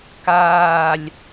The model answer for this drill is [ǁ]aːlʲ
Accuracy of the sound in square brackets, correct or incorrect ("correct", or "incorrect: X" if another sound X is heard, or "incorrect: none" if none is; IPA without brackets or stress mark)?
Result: incorrect: k